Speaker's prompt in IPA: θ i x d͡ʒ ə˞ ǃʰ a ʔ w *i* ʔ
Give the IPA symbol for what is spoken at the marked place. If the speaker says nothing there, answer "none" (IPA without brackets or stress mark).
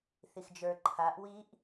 i